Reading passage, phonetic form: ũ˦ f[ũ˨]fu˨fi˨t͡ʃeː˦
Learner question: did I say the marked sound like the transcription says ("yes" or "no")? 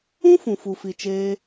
yes